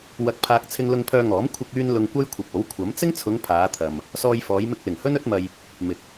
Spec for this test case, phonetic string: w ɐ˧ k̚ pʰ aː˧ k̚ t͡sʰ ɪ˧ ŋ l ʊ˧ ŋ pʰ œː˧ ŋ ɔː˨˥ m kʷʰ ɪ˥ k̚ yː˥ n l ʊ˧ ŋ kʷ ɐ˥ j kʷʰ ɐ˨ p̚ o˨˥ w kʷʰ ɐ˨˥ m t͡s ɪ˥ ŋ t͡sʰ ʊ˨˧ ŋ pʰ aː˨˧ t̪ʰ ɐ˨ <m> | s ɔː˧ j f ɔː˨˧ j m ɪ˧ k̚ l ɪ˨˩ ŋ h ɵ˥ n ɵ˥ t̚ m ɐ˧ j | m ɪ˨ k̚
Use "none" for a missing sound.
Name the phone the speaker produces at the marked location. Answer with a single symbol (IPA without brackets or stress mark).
m